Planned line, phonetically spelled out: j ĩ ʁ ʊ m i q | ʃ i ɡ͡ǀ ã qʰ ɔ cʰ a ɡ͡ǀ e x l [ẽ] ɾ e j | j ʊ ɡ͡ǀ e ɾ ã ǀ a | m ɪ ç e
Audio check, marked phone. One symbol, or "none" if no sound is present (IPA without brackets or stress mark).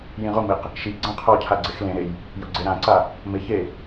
ẽ